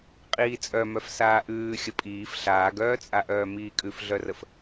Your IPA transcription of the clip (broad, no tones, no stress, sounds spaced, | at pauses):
qʼ iː t͡sʼ œ m œ f s aː ʔ ʉː xʲ ə pʼ iː f ɬ aː ɡ œː t͡sʼ a ʔ œː m iː kʼ ʉ f ɮ œ r ə f